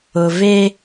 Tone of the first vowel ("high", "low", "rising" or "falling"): low